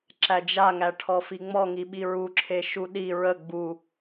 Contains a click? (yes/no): yes